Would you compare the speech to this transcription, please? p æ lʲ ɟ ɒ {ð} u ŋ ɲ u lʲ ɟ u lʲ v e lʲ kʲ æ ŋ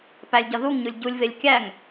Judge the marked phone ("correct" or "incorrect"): correct